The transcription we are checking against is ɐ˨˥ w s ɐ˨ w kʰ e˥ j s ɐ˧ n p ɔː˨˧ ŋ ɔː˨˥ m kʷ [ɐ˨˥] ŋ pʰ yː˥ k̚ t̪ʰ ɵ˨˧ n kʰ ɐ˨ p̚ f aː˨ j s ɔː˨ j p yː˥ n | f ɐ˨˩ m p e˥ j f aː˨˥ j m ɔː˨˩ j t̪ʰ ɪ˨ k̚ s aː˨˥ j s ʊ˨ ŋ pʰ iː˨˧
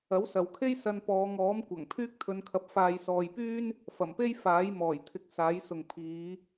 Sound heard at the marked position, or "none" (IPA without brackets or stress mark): ɐ˨˩